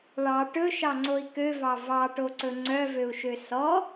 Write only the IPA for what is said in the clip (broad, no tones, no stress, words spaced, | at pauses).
ɭɑ ʈɵʃɑŋ͡ǀoi̯ køvɑ vɑʈoǀɵ ŋ͡ǀœvøu̯ʃø sɔ